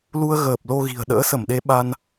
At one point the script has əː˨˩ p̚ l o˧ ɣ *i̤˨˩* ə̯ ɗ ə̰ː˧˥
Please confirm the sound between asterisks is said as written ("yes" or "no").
yes